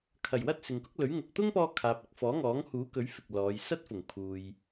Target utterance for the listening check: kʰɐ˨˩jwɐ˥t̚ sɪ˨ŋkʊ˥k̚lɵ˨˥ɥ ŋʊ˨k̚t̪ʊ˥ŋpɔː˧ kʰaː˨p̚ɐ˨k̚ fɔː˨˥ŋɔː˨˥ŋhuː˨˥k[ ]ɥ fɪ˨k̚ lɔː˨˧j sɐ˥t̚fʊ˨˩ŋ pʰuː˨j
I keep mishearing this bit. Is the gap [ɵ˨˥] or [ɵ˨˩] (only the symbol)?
ɵ˨˥